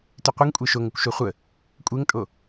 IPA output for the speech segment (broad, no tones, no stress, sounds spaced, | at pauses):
t ʉ qʷ e ŋ kʷʼ e ʃ o ŋ ə kʷ ʃ o χʷ ə | kʷʼ e ŋ tʼ o